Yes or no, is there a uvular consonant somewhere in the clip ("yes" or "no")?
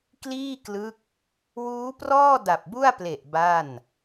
no